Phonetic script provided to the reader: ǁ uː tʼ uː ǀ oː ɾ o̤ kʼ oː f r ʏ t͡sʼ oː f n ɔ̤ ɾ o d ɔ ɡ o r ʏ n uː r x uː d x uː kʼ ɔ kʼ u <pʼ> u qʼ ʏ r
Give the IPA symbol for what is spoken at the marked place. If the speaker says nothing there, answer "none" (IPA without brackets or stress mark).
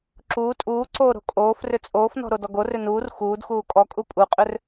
pʼ